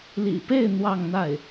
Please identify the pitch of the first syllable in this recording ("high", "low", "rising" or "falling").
low